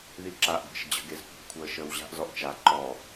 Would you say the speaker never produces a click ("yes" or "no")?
no